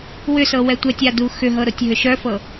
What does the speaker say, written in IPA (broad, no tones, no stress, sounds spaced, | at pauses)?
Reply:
w ʏ s ɤ w ɛ tʷ ɛ tʲ a d u x ʏ ɦ ɤ ɾ o tʲ ɦ ʏ ʃ œ f ɤ